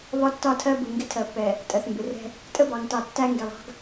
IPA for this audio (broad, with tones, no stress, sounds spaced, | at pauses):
β ɒ˦ tː ɒ˦˨ tʰ ɜ˦ b u˨ ŋ ɡ ɪ˦ tʰ ɜ˨ pː ɛ˨ | tʼ ɜ˨ θ m b ɪ˨ r ɛ̤˦ | tʼ ə˦ b ɑ˨ ŋ t ɑ˨ tː æ˦ ŋ ɡ ɛ˨ lˠ ɑ̤˦ ɡ